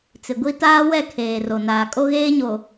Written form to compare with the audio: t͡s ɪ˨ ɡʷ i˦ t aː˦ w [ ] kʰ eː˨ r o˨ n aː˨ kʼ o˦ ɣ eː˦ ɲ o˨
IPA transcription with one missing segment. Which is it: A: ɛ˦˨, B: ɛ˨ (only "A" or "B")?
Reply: A